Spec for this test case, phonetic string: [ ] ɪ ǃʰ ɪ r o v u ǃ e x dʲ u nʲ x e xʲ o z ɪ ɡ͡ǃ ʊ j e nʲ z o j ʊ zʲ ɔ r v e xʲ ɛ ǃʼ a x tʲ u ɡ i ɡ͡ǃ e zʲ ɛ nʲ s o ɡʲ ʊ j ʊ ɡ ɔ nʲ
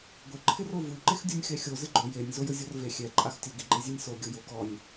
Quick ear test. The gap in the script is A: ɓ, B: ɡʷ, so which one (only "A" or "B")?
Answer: B